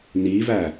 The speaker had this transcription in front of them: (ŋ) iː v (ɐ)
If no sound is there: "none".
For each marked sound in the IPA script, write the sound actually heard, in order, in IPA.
n, æ

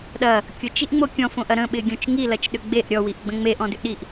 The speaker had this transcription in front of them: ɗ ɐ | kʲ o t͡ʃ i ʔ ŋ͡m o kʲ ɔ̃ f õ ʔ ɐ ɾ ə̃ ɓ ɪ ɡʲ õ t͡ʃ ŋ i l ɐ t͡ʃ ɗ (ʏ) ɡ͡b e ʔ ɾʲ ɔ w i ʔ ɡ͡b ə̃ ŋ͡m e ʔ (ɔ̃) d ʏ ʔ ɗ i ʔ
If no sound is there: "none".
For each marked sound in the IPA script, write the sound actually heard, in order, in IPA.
ʏ, ɔ̃

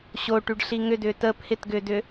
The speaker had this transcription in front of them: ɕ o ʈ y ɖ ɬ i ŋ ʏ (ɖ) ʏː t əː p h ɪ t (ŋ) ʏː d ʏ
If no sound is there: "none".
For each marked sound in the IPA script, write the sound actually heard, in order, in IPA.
d, ɡ

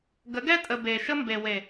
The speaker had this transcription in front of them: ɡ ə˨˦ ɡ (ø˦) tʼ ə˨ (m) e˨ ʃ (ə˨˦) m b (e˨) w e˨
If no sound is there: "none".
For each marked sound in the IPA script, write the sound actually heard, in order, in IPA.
ɛ˦, b, ə˦, e˨

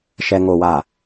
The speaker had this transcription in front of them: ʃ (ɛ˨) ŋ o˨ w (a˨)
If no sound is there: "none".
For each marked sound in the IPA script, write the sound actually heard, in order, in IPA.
ɛ˨, a˨

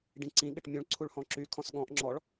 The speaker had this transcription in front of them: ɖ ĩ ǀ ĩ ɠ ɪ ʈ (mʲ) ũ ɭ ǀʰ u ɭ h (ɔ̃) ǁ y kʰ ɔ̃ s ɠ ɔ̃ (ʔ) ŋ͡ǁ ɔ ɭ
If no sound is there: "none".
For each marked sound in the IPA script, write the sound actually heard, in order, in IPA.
mʲ, ɔ̃, ʔ

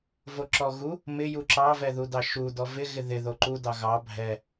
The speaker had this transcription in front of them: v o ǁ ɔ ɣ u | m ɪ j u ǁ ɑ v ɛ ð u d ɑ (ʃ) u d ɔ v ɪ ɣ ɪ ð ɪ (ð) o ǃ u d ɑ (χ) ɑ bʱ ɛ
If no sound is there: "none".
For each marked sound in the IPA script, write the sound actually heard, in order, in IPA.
ʃ, ð, ɣ

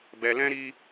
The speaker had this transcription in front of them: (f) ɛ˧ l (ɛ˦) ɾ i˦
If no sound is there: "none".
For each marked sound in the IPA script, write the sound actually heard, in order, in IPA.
b, ɛ̃˦

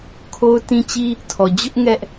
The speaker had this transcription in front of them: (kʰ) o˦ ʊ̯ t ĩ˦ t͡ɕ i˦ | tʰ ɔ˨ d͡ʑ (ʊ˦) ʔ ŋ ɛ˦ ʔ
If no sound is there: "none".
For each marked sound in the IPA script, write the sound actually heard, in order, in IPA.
kʰ, ʊ˦

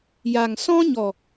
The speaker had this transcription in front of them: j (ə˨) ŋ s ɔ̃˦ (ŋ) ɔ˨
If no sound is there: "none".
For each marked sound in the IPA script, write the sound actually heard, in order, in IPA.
a˨, ɲ

